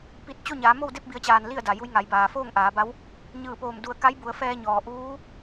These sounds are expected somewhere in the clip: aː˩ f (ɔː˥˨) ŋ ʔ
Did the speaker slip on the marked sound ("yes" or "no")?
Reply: yes